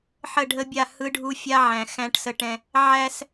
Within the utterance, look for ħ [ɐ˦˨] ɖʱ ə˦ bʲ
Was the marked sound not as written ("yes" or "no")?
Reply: yes